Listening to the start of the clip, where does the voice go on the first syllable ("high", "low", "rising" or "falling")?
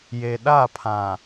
low